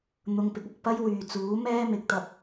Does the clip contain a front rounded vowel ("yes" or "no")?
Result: yes